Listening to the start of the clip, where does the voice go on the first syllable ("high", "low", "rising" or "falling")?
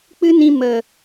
high